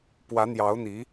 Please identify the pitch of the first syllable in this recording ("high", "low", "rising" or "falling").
rising